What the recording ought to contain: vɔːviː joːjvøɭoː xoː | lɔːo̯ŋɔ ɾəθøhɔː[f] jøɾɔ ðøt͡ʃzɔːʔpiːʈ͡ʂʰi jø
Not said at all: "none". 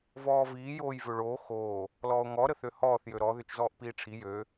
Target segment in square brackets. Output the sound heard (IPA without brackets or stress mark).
θ